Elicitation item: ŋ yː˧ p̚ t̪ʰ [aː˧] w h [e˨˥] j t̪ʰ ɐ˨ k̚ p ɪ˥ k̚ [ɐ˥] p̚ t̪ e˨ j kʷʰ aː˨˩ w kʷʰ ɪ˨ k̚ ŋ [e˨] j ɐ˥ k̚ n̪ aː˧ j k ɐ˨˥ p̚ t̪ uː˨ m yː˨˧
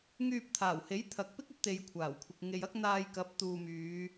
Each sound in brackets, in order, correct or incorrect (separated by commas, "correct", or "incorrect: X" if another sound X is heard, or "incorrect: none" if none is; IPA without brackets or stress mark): incorrect: aː˨˩, correct, correct, correct